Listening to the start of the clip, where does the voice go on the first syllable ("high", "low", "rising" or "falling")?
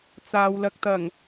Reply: low